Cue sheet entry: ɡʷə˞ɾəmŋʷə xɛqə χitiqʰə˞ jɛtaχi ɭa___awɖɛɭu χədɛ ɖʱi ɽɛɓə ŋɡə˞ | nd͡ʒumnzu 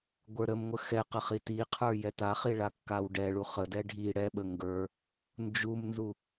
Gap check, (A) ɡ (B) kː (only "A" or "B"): B